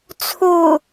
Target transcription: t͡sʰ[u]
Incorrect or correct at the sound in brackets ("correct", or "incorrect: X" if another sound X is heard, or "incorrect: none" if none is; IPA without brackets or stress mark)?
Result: correct